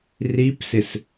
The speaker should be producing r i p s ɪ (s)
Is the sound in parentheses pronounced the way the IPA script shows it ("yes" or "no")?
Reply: yes